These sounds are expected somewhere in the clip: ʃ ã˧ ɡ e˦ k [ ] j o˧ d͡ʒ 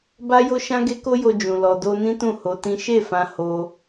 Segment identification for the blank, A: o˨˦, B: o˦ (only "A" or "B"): B